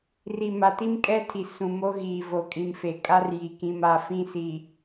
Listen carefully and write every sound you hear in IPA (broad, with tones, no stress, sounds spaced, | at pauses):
r i˨ m a˨ t i˦ m kʼ ɛ˦ tʰ i˨ s ũ˨ m o˦ ɣ iː˨ v o˨ kʼ ĩ˨ m f e˨ kʼ a˦ r j i˨ k ĩ˦ m a˦ f ĩ˦ s i˨